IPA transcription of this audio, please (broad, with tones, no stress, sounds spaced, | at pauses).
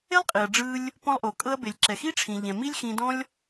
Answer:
e˦ lˠ qʼ i˨ ɐ̯ ɖ͡ʐ ɯ˧ lʲ | p ɔ̃˧ lˠ ʔ o˨ kʼ ɤ˧ ɐ̯ b e˨ lʲ ǁ ɛ˨ x i˦ ʈ͡ʂʰ ĩ˨ ʎ ɛ̃˨ m i˦ lʲ x ĩ˧ d ɔ̃˦ lʲ